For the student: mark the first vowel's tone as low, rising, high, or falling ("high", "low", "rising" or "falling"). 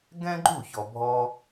high